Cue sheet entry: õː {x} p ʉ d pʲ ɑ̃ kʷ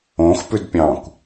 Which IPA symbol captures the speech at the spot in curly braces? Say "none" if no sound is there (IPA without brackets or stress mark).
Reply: x